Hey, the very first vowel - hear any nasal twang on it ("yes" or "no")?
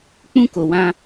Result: yes